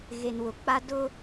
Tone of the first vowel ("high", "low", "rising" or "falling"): low